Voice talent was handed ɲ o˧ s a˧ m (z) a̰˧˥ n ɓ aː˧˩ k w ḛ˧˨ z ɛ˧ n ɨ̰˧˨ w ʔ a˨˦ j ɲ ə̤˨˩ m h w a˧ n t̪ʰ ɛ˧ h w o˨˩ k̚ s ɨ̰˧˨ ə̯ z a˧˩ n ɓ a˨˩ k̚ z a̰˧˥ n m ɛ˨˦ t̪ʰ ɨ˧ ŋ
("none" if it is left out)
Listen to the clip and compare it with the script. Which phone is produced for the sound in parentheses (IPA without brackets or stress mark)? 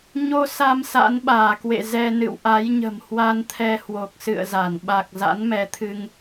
s